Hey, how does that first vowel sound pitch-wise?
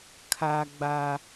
high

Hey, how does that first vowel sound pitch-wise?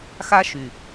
high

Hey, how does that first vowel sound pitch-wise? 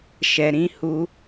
low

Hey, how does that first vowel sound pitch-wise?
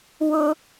high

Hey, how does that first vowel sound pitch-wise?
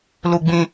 high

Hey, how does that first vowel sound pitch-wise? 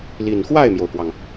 low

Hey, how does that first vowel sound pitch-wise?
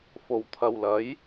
low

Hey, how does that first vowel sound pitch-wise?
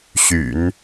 low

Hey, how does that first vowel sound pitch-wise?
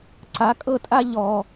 rising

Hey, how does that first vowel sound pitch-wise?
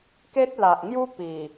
high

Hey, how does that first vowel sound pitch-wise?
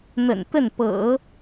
low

